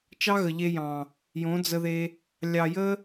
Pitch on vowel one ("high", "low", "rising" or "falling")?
high